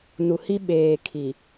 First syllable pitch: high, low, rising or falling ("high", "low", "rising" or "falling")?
low